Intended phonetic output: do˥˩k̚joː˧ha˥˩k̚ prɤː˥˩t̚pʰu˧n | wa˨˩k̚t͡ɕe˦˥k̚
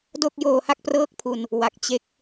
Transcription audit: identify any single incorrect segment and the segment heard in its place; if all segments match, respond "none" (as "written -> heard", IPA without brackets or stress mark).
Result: t̚ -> k̚